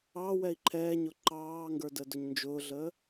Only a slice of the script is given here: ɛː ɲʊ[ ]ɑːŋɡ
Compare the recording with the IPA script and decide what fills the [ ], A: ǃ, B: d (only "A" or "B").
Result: A